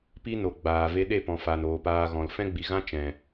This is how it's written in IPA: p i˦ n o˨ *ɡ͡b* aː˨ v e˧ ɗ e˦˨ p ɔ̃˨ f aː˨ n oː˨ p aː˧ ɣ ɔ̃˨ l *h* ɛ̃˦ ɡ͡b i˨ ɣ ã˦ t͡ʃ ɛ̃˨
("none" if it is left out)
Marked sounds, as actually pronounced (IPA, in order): ɡ͡b, f

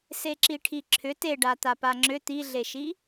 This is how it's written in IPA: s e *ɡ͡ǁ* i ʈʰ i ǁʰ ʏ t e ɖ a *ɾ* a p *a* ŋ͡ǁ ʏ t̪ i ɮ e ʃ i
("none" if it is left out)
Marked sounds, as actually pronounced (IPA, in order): ǁ, t̪, a

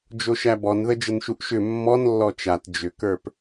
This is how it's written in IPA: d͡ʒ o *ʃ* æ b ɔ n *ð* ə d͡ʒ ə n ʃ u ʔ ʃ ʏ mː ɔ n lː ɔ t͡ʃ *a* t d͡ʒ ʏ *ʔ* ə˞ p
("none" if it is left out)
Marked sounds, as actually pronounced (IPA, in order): ʃ, ð, a, k

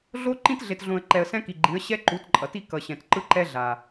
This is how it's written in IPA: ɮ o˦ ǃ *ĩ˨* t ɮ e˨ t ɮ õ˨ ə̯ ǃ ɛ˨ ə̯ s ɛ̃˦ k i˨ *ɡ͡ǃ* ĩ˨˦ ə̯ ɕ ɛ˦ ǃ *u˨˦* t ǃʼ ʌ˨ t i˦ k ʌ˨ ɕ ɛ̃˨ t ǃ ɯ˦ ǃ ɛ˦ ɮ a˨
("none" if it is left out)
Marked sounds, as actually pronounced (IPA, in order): ĩ˦, ɡ͡ǃ, u˨˦

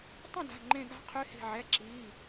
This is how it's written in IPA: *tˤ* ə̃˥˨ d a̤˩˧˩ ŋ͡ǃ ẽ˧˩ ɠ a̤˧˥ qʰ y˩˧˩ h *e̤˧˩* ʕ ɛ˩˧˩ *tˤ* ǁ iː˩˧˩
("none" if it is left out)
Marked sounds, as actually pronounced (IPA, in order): tˤ, e̤˧˩, none

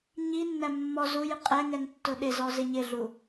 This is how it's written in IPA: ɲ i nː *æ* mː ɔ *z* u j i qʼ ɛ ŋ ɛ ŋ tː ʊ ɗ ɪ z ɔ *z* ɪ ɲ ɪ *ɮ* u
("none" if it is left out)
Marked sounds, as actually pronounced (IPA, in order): æ, z, z, ɮ

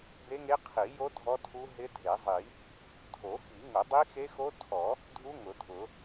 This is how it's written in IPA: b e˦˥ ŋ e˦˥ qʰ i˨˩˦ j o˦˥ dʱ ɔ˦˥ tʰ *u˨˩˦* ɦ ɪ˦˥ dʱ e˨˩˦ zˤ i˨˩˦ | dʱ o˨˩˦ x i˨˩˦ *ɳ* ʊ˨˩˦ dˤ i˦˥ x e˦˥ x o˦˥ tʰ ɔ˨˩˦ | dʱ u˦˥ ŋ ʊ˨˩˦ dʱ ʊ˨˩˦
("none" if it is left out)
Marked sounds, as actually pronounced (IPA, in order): u˦˥, ŋ

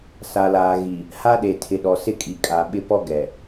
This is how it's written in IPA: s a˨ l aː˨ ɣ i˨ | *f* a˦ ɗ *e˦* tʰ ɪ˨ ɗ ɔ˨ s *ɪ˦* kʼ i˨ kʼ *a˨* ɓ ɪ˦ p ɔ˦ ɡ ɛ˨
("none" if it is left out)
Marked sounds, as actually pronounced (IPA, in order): h, e˨, ɪ˦, a˨

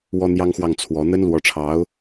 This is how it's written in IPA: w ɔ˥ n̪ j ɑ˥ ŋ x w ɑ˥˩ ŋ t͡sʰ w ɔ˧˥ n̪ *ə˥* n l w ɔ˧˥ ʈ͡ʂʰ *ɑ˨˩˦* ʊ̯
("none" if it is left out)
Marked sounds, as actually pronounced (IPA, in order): ə˥, ɑ˧˥

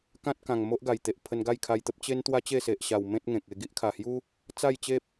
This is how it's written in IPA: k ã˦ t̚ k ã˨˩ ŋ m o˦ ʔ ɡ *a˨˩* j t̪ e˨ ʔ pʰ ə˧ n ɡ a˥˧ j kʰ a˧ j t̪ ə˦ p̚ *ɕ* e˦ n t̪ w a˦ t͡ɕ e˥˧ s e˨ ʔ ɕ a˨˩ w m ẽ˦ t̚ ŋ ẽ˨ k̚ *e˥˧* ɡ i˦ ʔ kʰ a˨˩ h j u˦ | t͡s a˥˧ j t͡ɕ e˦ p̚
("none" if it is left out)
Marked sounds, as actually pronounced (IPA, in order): a˨˩, t͡ɕ, e˧

